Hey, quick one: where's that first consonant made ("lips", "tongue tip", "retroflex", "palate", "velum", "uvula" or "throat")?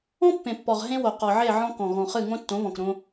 lips